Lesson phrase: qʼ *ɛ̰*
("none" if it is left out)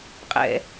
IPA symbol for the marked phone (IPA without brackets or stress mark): ɛ̰